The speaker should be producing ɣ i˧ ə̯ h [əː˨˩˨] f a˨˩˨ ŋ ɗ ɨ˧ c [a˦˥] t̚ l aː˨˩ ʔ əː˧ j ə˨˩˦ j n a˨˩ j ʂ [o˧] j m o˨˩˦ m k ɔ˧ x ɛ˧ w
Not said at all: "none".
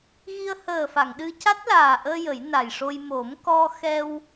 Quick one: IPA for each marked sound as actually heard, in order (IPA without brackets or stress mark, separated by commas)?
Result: əː˨˩, a˦˥, o˧